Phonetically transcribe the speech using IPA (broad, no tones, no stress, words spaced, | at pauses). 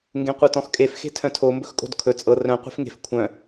ŋɡẽqʷɤtɔ̃xkʼef xe̤tʰœ̃tʰo mbɵxkʼo̤dkʰɵ t͡sʼɤ rœ̃ qʷe̤fŋe̤f kʷʰœ̃